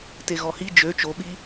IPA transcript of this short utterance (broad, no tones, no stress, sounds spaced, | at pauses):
t e ɣ ɔ h i d͡ʒ ø t͡ʃ o ɓ i